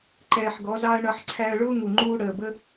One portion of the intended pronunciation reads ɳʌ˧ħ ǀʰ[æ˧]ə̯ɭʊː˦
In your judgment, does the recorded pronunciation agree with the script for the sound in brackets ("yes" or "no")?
yes